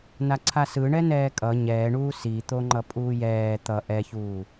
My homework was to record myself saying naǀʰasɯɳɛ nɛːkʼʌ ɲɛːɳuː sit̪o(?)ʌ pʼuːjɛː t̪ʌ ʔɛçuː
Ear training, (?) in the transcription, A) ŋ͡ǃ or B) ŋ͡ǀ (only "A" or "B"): A